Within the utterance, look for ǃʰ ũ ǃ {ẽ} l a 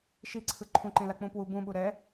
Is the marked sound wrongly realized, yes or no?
no